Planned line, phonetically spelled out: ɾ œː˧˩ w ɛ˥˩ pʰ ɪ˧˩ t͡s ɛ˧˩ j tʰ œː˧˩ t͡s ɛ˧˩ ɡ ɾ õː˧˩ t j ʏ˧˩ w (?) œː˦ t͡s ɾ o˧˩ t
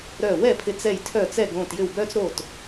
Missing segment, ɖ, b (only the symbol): b